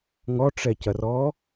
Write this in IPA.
ŋɔʈ͡ʂɛcɐrɔ

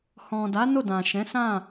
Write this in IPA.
hɔ̃˨da˨˦ no˦˨dã˨ʃɛ̃˨˦sã˦˨

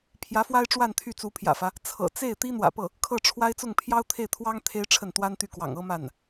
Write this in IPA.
pʰjä˧˥fwa˥ɪ̯ʈ͡ʂwa˥˧n t̪ʰy˥˩t͡su˧˥pʰjä̰˨˩fä˦ | t͡sʰɤ̰˨˩t͡se˥˩ɪ̯ t̪i˥n̪wä̰˨˩pɤ˥˩ | kʰɤ˥˩ʈ͡ʂʰwa˥ɪ̯ t͡sʊ˥˩ŋpʰjɑ˥ʊ̯t̪ʰe˥˩ɪ̯t̪ʰwɑ˥ŋ t̪ʰe˥ɪ̯ʈ͡ʂʰə˥˩nt̪wa˥nt̪y˥˩ kwɑ̰˨˩ŋ ɤ˥ma˥˩n

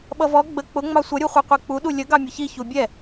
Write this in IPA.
ɓʌvɔ ɡ͡bə k͡pʊ ŋ͡mɑsʷʌ ɾʲuχʷiqʷik͡pu ɗulʲə ɡɑmʲʊçi çubʲɛ

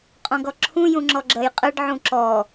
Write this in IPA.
qʼɔ̃ɡɔǁʰũ jũŋ͡ǁɔɡ͡ǁɜjqʼɜɖ ʕũǁɔ

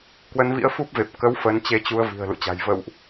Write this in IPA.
kwə˨˦nvḭ˧˥ə̯fu˦˥p̚ve˨˩p̚ kə˨˦w fə˨˦nt͡ɕe˧t͡ɕu˧ə̯ vi̤˨˩ə̯lṵ˧˨t͡ɕa̤˨˩j və̰˧˨wʔ

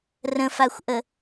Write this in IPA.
rə̃faxʷʔə

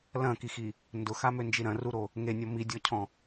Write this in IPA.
lɐ̃kixi | ndʊxamønd͡ʒi ɾɐ̃ruɾo | ŋenʲɔ midʲɔcʰɔ̃

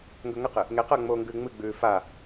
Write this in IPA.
ŋɡɵŋɐqɨ | ŋeqɐːŋ͡moːŋɡʉː ŋ͡mɨɡ͡bʉː fa

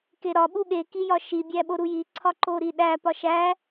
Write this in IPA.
keɾɒ ɓuɠe kijɒʃi bʲæɓoɾuji ǀʰɒǃoɾiɗæ pɒʃæ

